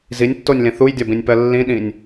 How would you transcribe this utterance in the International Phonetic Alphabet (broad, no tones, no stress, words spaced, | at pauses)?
zinʲtːonʲlĩ θujdʲɒbĩnʲpɜ lːĩɗĩnʲ